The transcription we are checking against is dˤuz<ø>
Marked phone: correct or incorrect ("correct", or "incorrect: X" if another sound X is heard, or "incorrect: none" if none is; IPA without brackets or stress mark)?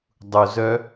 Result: incorrect: œ